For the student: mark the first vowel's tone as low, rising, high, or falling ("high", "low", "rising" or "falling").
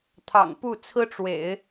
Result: low